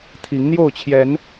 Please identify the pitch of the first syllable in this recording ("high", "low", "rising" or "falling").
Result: rising